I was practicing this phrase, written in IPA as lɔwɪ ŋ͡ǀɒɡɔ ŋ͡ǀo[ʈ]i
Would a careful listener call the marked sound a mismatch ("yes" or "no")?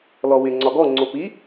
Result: yes